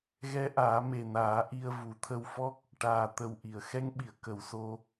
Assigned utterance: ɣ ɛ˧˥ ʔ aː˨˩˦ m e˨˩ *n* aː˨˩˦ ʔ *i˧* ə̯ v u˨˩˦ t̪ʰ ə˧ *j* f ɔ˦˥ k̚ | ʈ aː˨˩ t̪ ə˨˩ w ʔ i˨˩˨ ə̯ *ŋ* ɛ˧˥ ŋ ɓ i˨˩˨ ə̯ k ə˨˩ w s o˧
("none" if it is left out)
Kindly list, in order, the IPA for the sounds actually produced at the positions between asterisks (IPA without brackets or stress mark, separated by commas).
n, i˧, w, x